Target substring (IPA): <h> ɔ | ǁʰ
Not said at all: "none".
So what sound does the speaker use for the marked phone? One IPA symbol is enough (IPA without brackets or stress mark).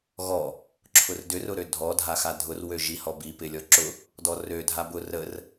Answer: ɣ